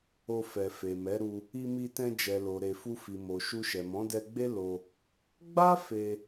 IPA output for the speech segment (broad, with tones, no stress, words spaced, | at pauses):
o˧ fɛ˨fe˨mɛ˨˦ɾu˧ | i˧mi˧tɛ̃˧ d͡ʒɛ˨lo˨ɾe˨ fu˧fi˨ mo˨ ʃu˧ʃɛ˨ mɔ̃˨˦dɛ˧ɡ͡be˦ lo˧ | ɡ͡ba˦ fe˧